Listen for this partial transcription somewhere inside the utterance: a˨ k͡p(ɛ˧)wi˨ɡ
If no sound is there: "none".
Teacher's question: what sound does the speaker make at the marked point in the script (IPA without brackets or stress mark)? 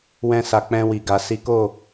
ɛ̃˧